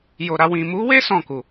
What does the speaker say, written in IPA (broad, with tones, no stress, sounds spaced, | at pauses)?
j o˨ ɾ a˧ w ĩ˨ m u˨˦ w e˦ s ɔ̃˦˨ k u˨